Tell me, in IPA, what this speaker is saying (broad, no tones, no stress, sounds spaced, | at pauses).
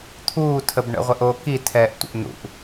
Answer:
t̪ʰ uː tʰ ə b ɳ ə̰ ʁʷ ɛ ʔ oː k i tʰ ɛː ʔ tʷ ə̰ ʔ n ṵ ʔ